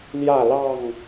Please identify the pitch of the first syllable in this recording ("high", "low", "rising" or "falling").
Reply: falling